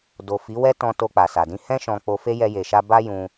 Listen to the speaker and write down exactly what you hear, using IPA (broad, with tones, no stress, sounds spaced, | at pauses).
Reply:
d o˨ f i˨˦ w ɛ˦ t ɔ̃˧ t o˧ k͡p a˨ s a˨ d ĩ˧ h ɛ̃˦ ʃ ɔ̃˧ k͡p o˧ f e˦ j ɛ˦ j e˧ ʃ a˦ b a˦ j ũ˧